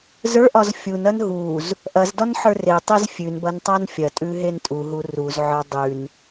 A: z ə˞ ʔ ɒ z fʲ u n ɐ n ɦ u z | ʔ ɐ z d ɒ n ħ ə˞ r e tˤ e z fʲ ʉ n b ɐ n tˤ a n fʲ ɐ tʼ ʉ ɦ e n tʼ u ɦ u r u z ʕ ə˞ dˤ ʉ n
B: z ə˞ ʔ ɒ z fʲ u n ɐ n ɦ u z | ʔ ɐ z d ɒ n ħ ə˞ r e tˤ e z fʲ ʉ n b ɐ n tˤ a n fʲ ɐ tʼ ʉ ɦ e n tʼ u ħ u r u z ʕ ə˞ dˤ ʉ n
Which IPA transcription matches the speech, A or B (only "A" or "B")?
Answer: A